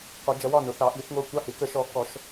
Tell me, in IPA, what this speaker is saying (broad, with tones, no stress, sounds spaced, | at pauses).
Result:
k ɒ˧˥ d͡ʒ ʌ˧˥ w ɒ˥˨ n ʊ˧˥ θ ɑ˧˥ ʔ i˧˥ θ ŋʷ ʌ˥˨ kʷ ɑ˥˨ h ɪ˧˥ k ə˧˥ ʃ ɔ˧˥ k ɔ˧˥ ʃ